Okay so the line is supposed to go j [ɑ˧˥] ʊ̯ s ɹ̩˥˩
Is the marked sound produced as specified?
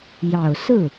no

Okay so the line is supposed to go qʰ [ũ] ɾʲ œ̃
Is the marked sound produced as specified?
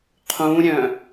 yes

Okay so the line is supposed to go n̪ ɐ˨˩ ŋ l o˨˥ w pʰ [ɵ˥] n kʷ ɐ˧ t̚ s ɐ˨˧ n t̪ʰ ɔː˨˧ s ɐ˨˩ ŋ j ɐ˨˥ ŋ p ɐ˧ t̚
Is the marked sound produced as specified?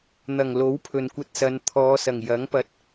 no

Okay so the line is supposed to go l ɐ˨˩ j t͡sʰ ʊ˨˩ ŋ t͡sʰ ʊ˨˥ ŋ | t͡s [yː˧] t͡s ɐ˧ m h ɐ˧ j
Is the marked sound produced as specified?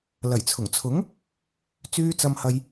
yes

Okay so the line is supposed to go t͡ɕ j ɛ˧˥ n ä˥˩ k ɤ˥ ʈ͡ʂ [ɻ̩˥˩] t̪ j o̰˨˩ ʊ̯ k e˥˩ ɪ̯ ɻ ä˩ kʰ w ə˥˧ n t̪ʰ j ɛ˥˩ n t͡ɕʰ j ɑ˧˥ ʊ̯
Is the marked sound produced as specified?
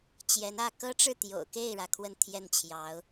yes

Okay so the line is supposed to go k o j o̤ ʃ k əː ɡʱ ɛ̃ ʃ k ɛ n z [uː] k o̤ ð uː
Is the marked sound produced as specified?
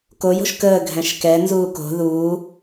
yes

